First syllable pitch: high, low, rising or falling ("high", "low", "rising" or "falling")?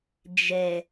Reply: low